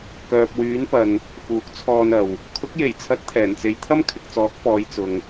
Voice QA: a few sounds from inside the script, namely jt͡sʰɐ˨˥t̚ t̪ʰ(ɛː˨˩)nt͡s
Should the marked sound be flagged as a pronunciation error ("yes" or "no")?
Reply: no